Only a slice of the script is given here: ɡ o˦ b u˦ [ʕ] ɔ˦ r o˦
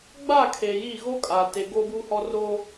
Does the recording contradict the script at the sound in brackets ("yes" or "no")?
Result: yes